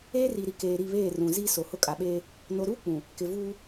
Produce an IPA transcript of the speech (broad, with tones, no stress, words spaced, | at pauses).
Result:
eː˦ri˨ɾi˨ keː˨ ɾi˦˨βeː˦˨ rũ˨ zi˦ so˨hʊ˦ kʼa˨ɓeː˦ | no˨ɾuː˦ k͡pũ˨ | kɪ˨ vuː˦